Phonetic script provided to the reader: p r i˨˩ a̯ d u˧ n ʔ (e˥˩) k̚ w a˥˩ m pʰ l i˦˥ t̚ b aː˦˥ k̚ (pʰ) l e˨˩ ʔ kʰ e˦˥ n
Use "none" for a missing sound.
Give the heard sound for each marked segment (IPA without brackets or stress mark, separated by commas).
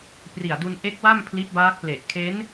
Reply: e˦˥, p